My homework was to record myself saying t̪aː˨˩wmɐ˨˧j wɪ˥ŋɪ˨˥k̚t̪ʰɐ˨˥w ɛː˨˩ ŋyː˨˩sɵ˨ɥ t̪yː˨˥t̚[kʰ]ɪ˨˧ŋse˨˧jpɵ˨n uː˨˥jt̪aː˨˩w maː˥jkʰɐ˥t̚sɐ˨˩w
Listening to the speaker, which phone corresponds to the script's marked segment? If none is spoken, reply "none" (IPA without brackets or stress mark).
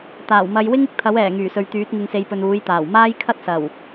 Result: ŋ